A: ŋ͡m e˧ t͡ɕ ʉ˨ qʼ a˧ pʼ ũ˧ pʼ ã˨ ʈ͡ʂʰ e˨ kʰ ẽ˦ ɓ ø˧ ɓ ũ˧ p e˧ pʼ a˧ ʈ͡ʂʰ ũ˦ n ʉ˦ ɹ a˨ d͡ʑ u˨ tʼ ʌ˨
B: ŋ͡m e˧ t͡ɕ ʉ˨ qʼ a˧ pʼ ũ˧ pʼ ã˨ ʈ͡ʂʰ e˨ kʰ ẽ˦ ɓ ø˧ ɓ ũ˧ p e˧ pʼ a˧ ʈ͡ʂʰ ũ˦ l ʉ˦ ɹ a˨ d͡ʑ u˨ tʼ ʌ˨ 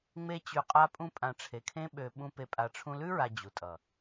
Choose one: B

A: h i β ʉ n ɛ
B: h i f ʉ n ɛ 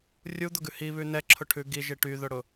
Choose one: A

